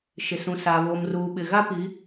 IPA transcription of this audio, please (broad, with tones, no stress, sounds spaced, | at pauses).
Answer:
ʃ ɪ˨ s ũ˨ s aː˨ β oː˨ m r uː˨ ɓ ɪ˨ ɣ a˦ p i˨˦